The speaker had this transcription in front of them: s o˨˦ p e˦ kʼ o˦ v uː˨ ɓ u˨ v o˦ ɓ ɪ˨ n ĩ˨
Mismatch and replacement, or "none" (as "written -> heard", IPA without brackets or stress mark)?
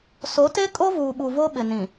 p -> t